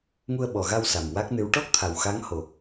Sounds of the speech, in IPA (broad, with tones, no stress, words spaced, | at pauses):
ŋu˧ə̯ɓɔ˨˩ɣa˧w sa˨˩mwa˦˥k̚nɨ˧˥w ʈɔ˦˥k̚ t̪ʰa˨˩wxa˧˥ŋho˨˩